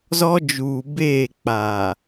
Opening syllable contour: high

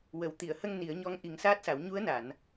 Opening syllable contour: low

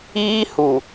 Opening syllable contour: high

